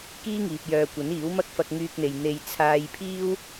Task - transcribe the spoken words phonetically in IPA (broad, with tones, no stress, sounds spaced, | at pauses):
k iː˥ ŋ iː˨ p̚ j œː˨ kʷ ɐ˨˥ n iː˨˥ w m ɐ˥ k̚ f ɐ˧ k̚ ŋ yː˧ k̚ n̪ e˨ j n̪ e˧ j t͡sʰ aː˧ j pʰ iː˥ w